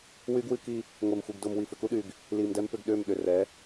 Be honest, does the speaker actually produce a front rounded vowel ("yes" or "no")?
yes